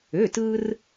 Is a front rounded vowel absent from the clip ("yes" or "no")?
no